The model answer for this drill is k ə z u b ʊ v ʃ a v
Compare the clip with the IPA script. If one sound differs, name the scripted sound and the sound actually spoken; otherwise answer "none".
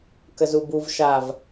ʊ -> u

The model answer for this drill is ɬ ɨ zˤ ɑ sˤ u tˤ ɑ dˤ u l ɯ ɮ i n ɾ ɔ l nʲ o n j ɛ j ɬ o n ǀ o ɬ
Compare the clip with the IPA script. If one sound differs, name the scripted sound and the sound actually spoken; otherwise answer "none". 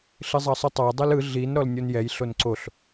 none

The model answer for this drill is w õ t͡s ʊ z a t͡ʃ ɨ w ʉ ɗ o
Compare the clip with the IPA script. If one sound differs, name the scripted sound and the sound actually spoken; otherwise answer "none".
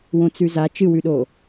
ʊ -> ʉ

